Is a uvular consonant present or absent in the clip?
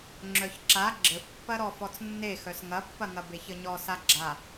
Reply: absent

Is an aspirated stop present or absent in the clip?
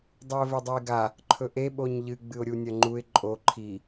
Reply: present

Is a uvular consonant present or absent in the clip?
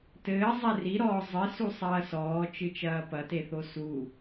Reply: absent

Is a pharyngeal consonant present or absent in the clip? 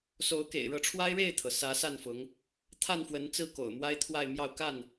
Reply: absent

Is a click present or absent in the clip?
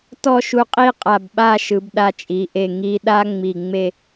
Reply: absent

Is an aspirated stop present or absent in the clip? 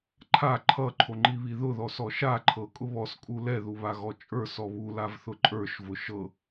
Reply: present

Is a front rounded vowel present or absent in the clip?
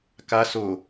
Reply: absent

